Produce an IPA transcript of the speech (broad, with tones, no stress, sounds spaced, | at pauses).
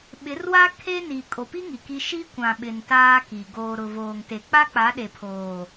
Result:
ɓ ɪ˨˦ r w a˦ kʰ e˦ n i˨ kʼ o˨ p i˦ ŋ i˨ k i˦ ʃ i˦ kʷ ã˨ ɓ ɪ˨ n t aː˦ k i˨ ɡ oː˨ ɾ ʊ˨ v oː˨ ŋ t e˨ k͡p a˦ k͡p a˨˦ ɗ e˨ pʰ oː˨